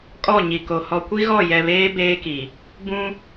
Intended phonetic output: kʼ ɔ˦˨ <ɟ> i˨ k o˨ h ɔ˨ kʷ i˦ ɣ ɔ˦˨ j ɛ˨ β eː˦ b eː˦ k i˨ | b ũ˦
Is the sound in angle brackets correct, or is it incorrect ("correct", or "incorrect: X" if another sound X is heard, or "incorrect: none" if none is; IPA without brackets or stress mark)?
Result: incorrect: ɲ